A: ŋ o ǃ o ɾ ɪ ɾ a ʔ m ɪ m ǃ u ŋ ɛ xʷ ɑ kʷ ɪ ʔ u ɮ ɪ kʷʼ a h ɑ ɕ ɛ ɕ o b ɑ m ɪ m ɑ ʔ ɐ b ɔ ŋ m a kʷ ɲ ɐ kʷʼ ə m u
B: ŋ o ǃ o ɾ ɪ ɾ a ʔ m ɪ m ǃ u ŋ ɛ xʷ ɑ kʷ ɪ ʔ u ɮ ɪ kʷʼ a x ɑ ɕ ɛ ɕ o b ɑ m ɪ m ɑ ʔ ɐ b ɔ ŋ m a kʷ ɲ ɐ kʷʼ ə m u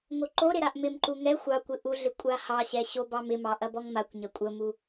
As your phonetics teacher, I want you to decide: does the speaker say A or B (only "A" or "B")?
A